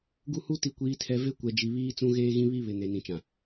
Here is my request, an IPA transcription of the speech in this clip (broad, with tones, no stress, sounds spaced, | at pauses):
ɡ u˦ h u˦ t i˨ kʷ iː˨ tʰ ɛ˨ v e˦ kʷ ɛ˨ d͡ʒ i˨ β iː˦ t͡s ũ˦ ɣ eː˦ ɣ ĩ˦ β i˦ β ɪ˨ n e˨ n ĩ˨ t͡ʃ ã˨